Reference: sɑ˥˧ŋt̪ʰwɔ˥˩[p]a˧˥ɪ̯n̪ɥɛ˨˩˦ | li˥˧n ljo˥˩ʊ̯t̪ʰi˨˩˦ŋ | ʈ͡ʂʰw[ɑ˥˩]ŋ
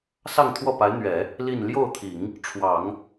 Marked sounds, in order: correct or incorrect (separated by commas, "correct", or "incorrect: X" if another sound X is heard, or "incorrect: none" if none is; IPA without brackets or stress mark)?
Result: correct, incorrect: ɑ˨˩˦